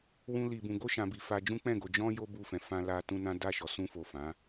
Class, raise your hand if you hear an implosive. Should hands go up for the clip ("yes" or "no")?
no